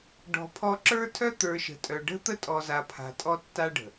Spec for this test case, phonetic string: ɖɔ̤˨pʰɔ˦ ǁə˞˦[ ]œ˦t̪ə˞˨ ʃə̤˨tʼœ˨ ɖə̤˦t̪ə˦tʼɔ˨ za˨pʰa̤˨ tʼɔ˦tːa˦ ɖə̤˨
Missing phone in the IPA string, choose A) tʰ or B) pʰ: A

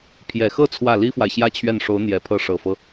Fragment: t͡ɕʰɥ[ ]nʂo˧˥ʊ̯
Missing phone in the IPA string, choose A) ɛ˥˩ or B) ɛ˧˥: A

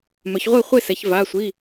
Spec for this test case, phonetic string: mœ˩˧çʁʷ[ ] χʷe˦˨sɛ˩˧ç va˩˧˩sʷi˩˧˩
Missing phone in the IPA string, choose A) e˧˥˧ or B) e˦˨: B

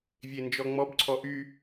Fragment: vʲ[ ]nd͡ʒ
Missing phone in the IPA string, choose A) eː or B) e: B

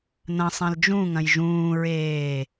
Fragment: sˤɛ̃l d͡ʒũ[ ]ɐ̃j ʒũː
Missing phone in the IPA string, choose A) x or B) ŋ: B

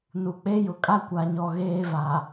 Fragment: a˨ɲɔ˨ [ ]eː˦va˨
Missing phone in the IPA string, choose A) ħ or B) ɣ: B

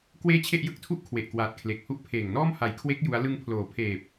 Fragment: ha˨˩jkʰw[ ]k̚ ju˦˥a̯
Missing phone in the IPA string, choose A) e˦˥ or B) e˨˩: A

